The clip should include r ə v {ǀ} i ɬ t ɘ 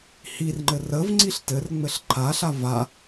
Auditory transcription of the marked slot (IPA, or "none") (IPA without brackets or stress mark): ŋ͡ǀ